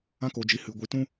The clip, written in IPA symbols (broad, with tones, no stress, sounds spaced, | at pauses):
ã˦ k o˧ d͡ʒ i˧ h ɨ˧ ɡʷ i˧ t ũ˦